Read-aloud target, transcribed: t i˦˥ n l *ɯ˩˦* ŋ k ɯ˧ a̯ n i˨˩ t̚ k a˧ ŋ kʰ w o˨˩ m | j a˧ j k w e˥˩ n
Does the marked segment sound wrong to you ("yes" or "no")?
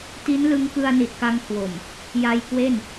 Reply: yes